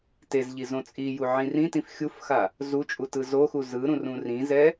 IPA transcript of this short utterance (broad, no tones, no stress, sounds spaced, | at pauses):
t e z ʎ i z õ t͡sʼ i j u ʕ ĩ r ĩ t ĩ f xʲ u f x a | z u t͡ʃʼ u t ɯ z o x u z ɯ ɾ ũ r ũ r ĩ z ɛ